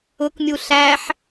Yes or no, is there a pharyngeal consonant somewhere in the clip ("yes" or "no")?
yes